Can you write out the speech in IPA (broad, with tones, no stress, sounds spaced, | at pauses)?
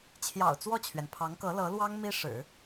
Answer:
t͡ɕʰ j ɑ̰˨˩ ʊ̯ t͡s w ɔ˥˩ t͡ɕʰ ɥ ɛ˩ n pʰ ɑ˧˥ ŋ k ɤ˧˥ l ɤ˧˥ l w ɑ˥ ŋ m i˥ ʂ ɻ̩˨˩˦